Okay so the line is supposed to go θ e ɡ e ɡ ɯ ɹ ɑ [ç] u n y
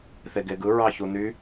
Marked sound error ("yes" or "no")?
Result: no